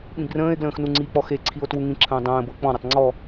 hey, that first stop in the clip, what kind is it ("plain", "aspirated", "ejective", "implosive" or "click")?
implosive